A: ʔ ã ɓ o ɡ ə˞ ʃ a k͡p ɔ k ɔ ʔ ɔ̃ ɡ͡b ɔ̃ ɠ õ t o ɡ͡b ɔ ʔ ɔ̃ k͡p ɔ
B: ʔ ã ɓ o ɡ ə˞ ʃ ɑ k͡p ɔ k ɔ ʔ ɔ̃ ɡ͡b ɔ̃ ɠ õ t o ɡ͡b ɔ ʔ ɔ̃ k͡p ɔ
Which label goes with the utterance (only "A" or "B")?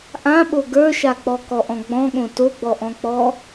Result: A